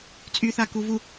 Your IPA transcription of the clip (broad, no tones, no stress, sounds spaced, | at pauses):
t͡sʼ y θ a k u v u